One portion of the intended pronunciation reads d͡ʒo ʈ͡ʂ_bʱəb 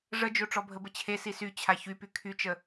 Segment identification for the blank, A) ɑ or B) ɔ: B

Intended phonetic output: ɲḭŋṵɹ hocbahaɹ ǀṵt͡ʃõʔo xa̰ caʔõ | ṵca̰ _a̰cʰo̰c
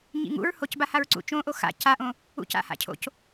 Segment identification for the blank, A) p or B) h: B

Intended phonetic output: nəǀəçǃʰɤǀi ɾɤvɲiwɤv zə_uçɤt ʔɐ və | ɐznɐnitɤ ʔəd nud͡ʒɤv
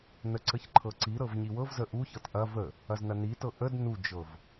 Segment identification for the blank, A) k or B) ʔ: B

